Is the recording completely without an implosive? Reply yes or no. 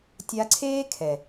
yes